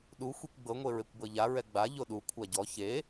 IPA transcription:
ɗ u xʷ i kʷ ɡ͡b ɤ ŋʷ e ɹ e kʷ b ɤ ʎ a ɹ ɛ ɡ͡b a ʎ o ɗ u kʷʰ a ɟ ɔ ç e

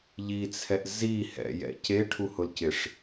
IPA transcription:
ʎ i t͡sʰ ɛ ʔ z i h ɛ̰ j ɛ̰ c e ʈʰ u h ʊ l c ɪ ʂ

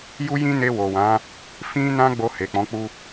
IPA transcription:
j u˦ j ĩ˦ n e˧ w o˨ w ã˨˦ | f ĩ˦ n ã˦ ɡ͡b o˧ h e˨ k͡p ɔ̃˨˦ k͡p u˦

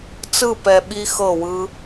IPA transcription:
t͡s ɯ˦˨ p ɛ˨ ɓ i˦ x ɤ˦˨ w ɯ˦

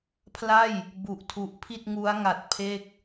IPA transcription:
pʰ l a˥˩ j | b u˨˩ ʔ tʰ u˨˩ ʔ pʰ i˥˩ t̚ ŋ u˦˥ a̯ ŋ a˨˩ t̚ pʰ e˥˩ k̚

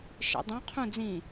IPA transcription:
ʃ ḛ dˤ ũ qʰ ũ d͡z ĩ

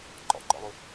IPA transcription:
ǃ ɔ̰ ǃ ɔ̰ lˠ u

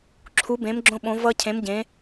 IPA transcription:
ǁʰ u˨˦ b ẽ˨˦ m ɡ͡ǁ õ˦ ɓ õ˨˦ v ʌ˦ cʰ ẽ˨˦ m ɟ ẽ˨˦

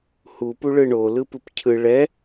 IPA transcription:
h u p u ɭ ɯ ɳ o l ɯ p ɯ p cʰ ɯ ɭ ɛ

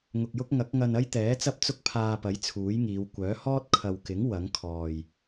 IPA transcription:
ŋ ʊ˨ k̚ j ʊ˥ k̚ ŋ ɐ˨˥ k̚ ŋ ɐ˧ n ɐ˥ j t̪ ɛː˨˥ t͡s ɐ˥ p̚ t͡s ʊ˥ k̚ pʰ aː˧ p ɐ˨˥ j t͡sʰ uː˨˥ j ŋ iː˨˧ w kʷ œː˨˥ h ɔː˥ t̚ kʰ ɐ˨ w k ɪ˨˥ ŋ w ɐ˨˥ ŋ kʰ ɔː˨˩ j

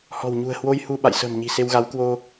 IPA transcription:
h ɔ̤˨˩ w ɲ ṳ˨˩ ə̯ h w o˧ j h u˧ ɓ a̰˧˨ j s ə̤ː˨˩ m ɲ i̤˨˩ s e˧ w ɣ a˨˦ w k w o˧

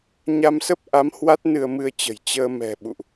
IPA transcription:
ɲ a˧ m s ə˦˥ p̚ ʔ a˨˦ m h w a˦˥ t̚ n ɨ˧ ə̯ m ɨ˧ ə̯ t͡ɕ ə̤˨˩ j t͡ɕ əː˧ m ɛ̤˨˩ ɓ ṵ˧˨ ʔ

